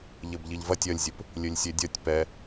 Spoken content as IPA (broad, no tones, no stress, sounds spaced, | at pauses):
ʎ ɘ b ʎ i ʎ v ɐ tʲ ɐ lʲ zʲ ɘ p | lʲ ɘ lʲ sʲ e dʲ ɐ tʲ p ɛ